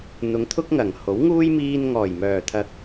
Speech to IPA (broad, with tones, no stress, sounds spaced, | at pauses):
n̪ ʊ˨˧ ŋ t̪ʰ ʊ˥ k̚ ŋ ɐ˨˩ ŋ h o˨˥ w ŋ uː˥ j m iː˧ n ŋ ɔː˨˩ j m œː˨˩ t̪ʰ ɐ˨ k̚